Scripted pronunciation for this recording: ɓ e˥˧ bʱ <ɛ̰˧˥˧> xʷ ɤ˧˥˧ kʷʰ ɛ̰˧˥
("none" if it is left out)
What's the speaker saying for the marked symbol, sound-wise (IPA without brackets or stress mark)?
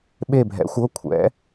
ɛ̰˧˥